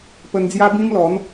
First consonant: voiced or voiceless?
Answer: voiceless